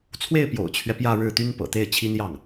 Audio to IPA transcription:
t͡sʰwe˥˩ɪ̯pjo̰˨˩ʊ̯t͡ɕʰɥɛ˦ pjä˥˧ɻɻ̩˥˩ t̪y˥npɤ̰˨˩t̪e˥˩ɪ̯t͡ɕʰi˥n jɑ˥˩ŋ

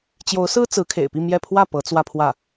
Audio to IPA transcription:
t͡ɕjo˧˥ʊ̯sɹ̩˥ t͡sɹ̩˧˥kʰḛ˨˩ɪ̯pi˥˧ mjɛ˥˧ pʰwä˥˩ pɤ˧˥t͡swä˥˧pʰwä˥˩

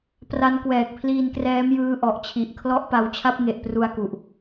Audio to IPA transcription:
pra˦˥nkwɛː˨˩k̚pʰliː˧nkrɛː˦˥m jɯː˦˥ʔɔ˨˩ʔt͡ɕʰi˨˩ʔ kʰlɔ˦˥ʔ pa˧wt͡ɕʰa˦˥p̚ ŋe˨˩ʔpru˧a̯ku˨˩ʔ

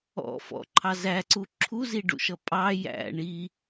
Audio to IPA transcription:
ɔ̰fɔ̰ǃʰɑ zæǀu ǁʰuziɖṵʃʌ pʼɑ jæ̰ ɳi

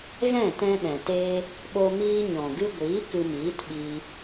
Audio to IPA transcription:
ɣɛ̃˦˨tɛ̃˧ ɗɛ̃˨teː˦ | ɓo˧miː˧ ɲɔ̃˨ɡɨ˧ɡʷiː˨˦ kɨ˧miː˨˦tɓiː˧

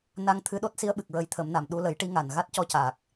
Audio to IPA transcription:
na˧ŋt̪ʰɨ˧ɗo˦˥t̚ si˧ə̯ɓɨ˨˩k̚ɹə˨˩˦j t̪ʰə˨˩˦mna˨˩m ɗu˧lə˨˩˦j ʈi˧˥ŋa˨˩n ɣa˦˥t̚cɔ˧caː˨˩k̚

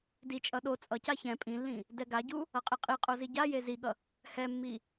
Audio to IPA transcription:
dit͡ʃʼʌ ɗo t͡sʼʌca çɛ̃ pʼĩlːĩ | dɛɡaɟu | ʌqʼeqʼiqʼo ziɟaje ziɠʌ | hɛmːi

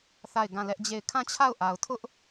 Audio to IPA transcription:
θa˦˨ɪ̯ɡã˦˨lɛ˦ʔd͡ʑe˦˨ɪ̯ kʰã˦˨t͡ɕʰa˦˨ʊ̯ʔa˨ʊ̯tʰʊ˦ʔ

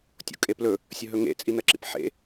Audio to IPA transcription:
tʲo̰kʼeplɵ | sʲɵɦɵŋḛ t͡sʼinɐǁḭpħḛ

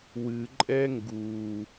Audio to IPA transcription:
wɨ ǃʼɛŋɡu

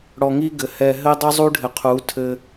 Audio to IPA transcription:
ɽɔ˨ŋi˦ɡɘ˨ hɛ˨ɦɘ˦dˤɨ˦ zˤu˦ɖʱɘ˨qʰu˨˦ tʰɘ˦

